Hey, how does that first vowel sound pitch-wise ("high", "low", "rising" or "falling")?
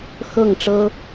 falling